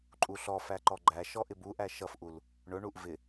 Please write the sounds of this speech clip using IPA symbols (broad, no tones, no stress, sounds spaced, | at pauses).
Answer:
ǃʼ u ɬ ɔ f æ ǃ ɔ ɡ͡ǃ æ ʃ ɔ ʔ ɪ b u ʔ æ ʃ ʌ f ʔ u l | ɳ ʊ ɳ u ʔ v ɪ